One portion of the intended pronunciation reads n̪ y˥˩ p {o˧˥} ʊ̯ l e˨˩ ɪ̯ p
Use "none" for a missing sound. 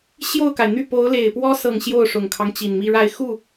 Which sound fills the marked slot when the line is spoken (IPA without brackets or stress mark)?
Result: o˧˥